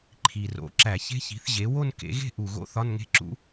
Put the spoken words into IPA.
ǃʰ i˨˩ r o̰˩˥ ǁ æ˧˩˧ ç e̤˦˥ ç i̤˩˥ θ ʑ e˩˥ w o˥˧ n k ḛ˩˥ ɣ e̤˥˧ ʔ u˨˩ ɣ o̰˦˥ θ ɒ˧˥˧ n ŋ e̤˦˥ ǁ ṵ˦˥

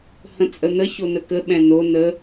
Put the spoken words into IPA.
h ə̃ t͡sʼ ə n̪ ə ç o n ə k ə ɓ ɛ̃ n o n ə

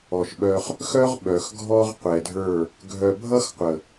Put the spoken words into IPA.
ɔ˨ ʃ ɓ œ˧ χ | x œ˦ ʁ ɓ œ˨ x ɡʱ ɔ˦ ʁ qʷ ɛ˨ dʱ ə˞˦˨ | ɡʱ œ˨ bʱ ʌ˦ x qʷ ə˨

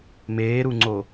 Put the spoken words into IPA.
m eː ɾ u ŋ͡ǀ o

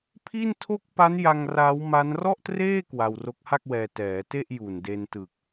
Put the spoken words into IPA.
pʰ i˥˩ n tʰ o˥˩ k̚ p a˦˥ n j a˧ ŋ r a˦˥ w m a˦˥ n r ɔ˥˩ ʔ t r eː˥˩ k w a˧ w r o˦˥ k̚ h a˥˩ k̚ w ɛː˧ t ɛː˩˦ t e˥˩ ʔ j u˨˩ n d e˧ n t ɯ˨˩ k̚

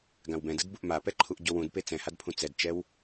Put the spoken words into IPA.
ɡ ã w b ɛ̃ d ɯ d b u ʔ m a p ɛ ǃʰ u ʔ ɟ o w ũ d p e t͡s ɛ̃ h a d pʰ ũ t͡s ɛ d t͡ʃ ɛ w

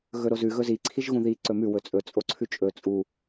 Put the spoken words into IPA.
ɣ ɵ ɾ o z ʉ ɣ ɵ z i ǀʰ i ʒ ɣ ũ ð i ǀ ɵ m ʉ w ɵ t͡sʼ ɵ t͡sʼ o ǀʰ ʉ t͡ʃʼ ɵ t͡sʼ u

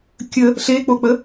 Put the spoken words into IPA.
kʲ ə | ɬ e k͡p o k͡p ə

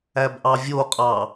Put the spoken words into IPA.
æ b ʔ ɑ vʲ o qʼ ɑ

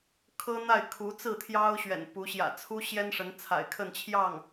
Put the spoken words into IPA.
kʰ ɤ˥ n̪ a˥˩ ɪ̯ kʰ u˧˥ t͡s ɹ̩˥˩ t̪ʰ j ɑ˥ ʊ̯ ɕ ɥ ɛ̰˨˩ n p u˧˥ ɕ j ä̰˨˩ t͡sʰ u˥ ɕ j ɛ˥ n ʂ ə˧˥ n t͡sʰ a̰˨˩ ɪ̯ kʰ ə˥˧ n t͡ɕʰ j ɑ˥˩ ŋ

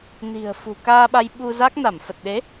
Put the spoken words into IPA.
n i̤˨˩ ə̯ f ṳ˨˩ k aː˧ ɓ a˧ j ɓ u˧ z a˦˥ k̚ n a˧˩ m f ə˨˩ t̚ ɗ e˨˦

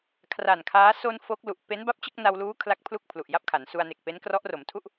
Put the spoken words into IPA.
kʰ r a˨˩ n kʰ aː˦˥ s o˧ n f o˦˥ k̚ l u˨˩ ʔ p e˦˥ n b a˦˥ p̚ t͡ɕ ɯ˥˩ k̚ n a˧ w l uː˦˥ kʰ l a˦˥ k̚ pʰ l u˥˩ k̚ pʰ l u˨˩ ʔ j a˥˩ p̚ kʰ a˩˦ n s u˧ a̯ n e˨˩ k̚ p e˦˥ n k r ɔ˦˥ ʔ r o˩˦ m tʰ u˥˩ ʔ

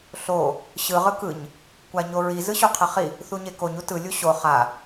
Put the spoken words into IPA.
ɬ o | ɕ ɯ ʁ ɯ k ɯ ɲ | kʷ a ɲ o ɹ i z ɯ ɕ o qʰ ɛ χ i | θ u ɲ e k o ɲ u t ɯ lʲ u ɕ o χ a

